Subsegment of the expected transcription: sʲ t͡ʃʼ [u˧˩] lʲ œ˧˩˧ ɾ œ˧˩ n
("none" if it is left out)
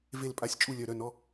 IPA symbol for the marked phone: u˧˩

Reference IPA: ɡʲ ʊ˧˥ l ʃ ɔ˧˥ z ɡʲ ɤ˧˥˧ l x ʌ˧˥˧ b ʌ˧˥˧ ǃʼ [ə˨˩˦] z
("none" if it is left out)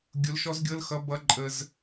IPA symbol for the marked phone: ə˧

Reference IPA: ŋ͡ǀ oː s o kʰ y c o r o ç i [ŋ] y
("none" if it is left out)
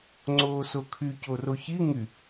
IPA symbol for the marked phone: ŋ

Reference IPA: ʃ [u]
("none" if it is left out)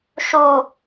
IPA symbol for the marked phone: u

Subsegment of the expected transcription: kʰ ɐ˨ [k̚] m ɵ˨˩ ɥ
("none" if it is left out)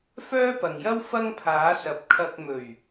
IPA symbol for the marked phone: k̚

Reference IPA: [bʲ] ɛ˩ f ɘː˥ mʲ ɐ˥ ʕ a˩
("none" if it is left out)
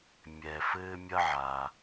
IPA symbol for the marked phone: mʲ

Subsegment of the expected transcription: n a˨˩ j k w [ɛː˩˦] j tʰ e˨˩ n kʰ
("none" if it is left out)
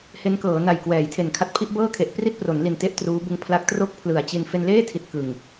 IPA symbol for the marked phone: ɛː˩˦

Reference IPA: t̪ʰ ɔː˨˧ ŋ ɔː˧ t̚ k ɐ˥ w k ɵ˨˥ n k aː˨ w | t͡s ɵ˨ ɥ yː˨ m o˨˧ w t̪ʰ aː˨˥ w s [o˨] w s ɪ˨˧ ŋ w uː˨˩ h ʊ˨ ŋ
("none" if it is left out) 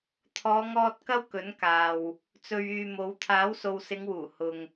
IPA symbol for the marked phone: o˨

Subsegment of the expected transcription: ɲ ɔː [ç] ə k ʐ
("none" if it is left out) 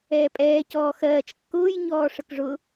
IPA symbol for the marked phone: ʂ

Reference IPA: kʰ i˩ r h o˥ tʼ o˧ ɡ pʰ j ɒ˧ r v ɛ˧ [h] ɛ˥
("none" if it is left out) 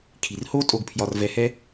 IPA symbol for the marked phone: h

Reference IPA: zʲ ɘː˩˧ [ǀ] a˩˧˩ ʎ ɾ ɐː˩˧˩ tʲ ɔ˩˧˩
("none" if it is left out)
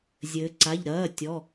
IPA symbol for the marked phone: ǀ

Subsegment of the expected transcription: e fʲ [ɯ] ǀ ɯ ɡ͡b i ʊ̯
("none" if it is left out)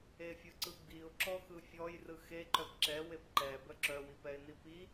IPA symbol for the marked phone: ɯ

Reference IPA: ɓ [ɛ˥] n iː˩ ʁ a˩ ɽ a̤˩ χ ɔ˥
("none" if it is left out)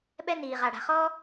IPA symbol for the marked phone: ɛ˥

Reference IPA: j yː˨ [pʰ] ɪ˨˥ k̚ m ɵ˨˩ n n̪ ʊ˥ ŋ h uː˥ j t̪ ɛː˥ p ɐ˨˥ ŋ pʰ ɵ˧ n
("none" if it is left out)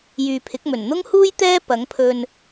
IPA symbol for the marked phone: pʰ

